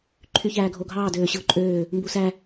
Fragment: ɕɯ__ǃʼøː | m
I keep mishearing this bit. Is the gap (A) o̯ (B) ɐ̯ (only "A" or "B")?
A